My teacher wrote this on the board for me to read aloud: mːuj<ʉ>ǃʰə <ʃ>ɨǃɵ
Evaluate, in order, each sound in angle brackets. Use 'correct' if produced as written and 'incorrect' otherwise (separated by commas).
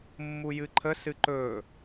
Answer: incorrect, incorrect